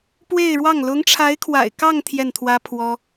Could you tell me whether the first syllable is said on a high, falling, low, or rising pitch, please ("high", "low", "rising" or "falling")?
falling